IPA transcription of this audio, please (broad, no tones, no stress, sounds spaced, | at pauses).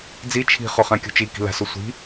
d͡z i t͡ʃʰ i̤ χ o χ ã kʲ ṳ t͡ʃ i k i̤ l a̤ s o sʷ i̤